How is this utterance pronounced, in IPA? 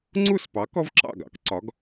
ŋ͡ǀ u˥˩ s p ɑ˩˥ k ɔ˥ v ǁ ɑ̰˥˩ ɡ ɑ̰˥ k ǀ ɒ˩˥ ɡ

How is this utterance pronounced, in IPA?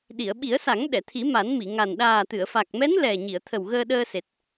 ɗ i˨˩˨ ə̯ ɓ i˨˩˦ ə̯ s a˨˩˦ ŋ ɗ ɛ˨˩˨ t̪ʰ i˨˩˦ m a˨˩˦ n m i˨˩˨ ŋ a˨˩ n ɗ aː˨˩ t̪ ɨ˨˩˨ ə̯ f a˨˩ k̚ m ɛ˧˥ n l ɛ˨˩ ɲ i˨˩˨ ə̯ t̪ʰ ə˨˩ w ɣ əː˧ ɗ əː˧ s e˨˩ t̚

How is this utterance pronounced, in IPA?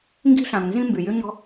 ŋ ɡ i̤˦ ɬ ã˨ ŋ n z ĩ˦ m b y˩ j y˦ ɲ ɔ̤˦

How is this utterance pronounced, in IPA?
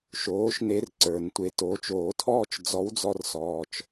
ʃ oː˨˥ ʃ n e˧ r ǀ ə˞˨˩˦ n tʷ e˨˥ t oː˨˥ t͡ʃ oː˨˩˦ tʰ ɔː˥˧ t͡ʃ d͡z ɔ˨˥ w d͡z ɔ˧ r s ɔː˧ t͡ʃ

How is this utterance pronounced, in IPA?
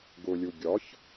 ɡ ʊ lʲ u ɡʲ ɒ ç

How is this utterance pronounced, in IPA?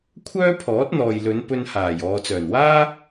kʷʰ œː˥ pʰ ɔː˨˥ t̚ n̪ ɔː˨ j l ɵ˨˧ n p ɵ˧ n h aː˨˩ j ɔː˨ t͡s œː˨˩ n w aː˥

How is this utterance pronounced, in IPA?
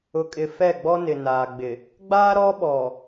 ʊ˨ kʼ ɪ˨ f ɛ˦˨ ɡ͡b ɔ˦ n ɪ˨ n aː˨ ɡ͡b ɪ˨ | ɡ͡b aː˦ ɾ ɔ˦ ɓ ɔ˨

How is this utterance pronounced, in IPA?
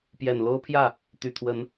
p j ɛ˨˩ n l o˦ ʊ̯ pʰ j ä˥˨ | t̪ y˨˩ t̪ʰ w ə˨˦ n

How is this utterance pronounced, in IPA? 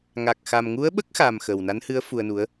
ŋ a˨˩ k̚ x a˨˩ m ŋ u˧˥ ə̯ ɓ ə˦˥ k̚ x a˨˩ m x ə˨˩ w n a˧˥ n h ɨ˧˥ ə̯ f u˧ ə̯ n u˧˥ ə̯

